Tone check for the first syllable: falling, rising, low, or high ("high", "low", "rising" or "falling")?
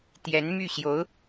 rising